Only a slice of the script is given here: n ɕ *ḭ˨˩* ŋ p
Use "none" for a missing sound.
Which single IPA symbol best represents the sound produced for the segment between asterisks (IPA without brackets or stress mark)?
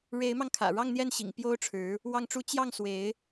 ḭ˨˩